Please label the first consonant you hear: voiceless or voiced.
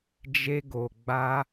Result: voiced